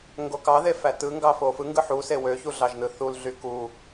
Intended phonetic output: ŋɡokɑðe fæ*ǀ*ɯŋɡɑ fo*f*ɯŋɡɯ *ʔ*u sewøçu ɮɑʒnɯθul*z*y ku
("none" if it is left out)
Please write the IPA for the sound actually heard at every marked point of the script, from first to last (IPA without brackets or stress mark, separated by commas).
t, f, ħ, ɮ